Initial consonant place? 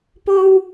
labial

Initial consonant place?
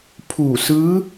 labial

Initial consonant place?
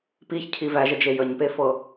labial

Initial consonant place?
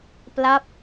labial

